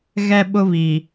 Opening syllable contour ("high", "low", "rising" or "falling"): high